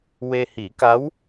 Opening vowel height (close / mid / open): mid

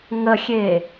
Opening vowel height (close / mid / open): mid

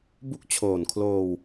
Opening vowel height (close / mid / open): close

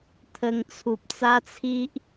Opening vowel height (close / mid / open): mid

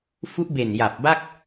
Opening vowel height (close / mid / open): close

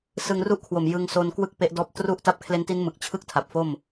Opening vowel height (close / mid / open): close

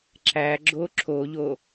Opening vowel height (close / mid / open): open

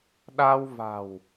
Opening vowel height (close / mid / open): open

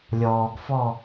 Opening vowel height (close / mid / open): mid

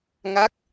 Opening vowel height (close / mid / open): open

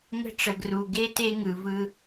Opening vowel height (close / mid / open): mid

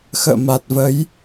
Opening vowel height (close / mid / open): mid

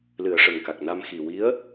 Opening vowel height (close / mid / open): close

